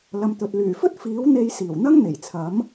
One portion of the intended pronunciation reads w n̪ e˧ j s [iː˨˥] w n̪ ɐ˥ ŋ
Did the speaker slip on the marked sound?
yes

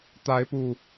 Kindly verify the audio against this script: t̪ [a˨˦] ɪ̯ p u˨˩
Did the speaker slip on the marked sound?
no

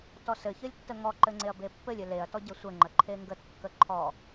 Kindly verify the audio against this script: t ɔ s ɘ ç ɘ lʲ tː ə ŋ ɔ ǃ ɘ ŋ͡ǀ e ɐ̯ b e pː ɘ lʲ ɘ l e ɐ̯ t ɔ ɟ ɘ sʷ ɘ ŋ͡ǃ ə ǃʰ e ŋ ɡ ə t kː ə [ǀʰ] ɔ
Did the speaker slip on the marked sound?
yes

